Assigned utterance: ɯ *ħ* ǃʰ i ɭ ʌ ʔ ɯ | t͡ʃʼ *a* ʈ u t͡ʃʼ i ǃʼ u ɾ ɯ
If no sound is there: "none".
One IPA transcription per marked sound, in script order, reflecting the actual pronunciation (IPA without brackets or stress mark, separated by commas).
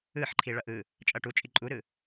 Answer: ħ, ʌ